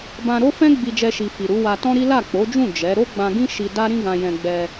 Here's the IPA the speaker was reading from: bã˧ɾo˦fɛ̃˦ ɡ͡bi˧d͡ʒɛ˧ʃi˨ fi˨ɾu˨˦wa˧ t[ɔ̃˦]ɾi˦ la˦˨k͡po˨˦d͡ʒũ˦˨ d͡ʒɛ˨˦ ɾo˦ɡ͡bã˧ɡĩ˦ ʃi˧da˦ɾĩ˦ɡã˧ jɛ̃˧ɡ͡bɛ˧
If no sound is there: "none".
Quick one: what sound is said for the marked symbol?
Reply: ɔ̃˦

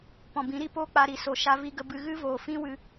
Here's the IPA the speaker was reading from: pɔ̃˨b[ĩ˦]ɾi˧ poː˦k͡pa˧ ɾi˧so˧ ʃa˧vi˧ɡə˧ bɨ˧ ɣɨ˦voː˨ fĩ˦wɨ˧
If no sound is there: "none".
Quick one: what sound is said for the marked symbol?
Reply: ĩ˨˦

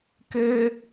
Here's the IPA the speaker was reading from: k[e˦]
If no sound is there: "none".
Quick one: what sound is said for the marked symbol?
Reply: e˦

